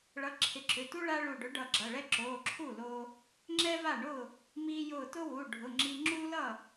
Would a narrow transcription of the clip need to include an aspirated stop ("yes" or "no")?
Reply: yes